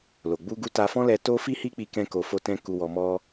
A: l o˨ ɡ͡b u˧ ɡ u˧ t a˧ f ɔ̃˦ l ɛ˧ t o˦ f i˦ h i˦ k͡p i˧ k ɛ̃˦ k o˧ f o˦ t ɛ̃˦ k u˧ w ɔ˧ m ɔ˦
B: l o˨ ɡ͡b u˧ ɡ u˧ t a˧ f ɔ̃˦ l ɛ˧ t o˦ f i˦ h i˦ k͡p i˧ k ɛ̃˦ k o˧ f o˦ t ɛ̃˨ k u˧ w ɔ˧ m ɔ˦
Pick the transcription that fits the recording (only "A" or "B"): A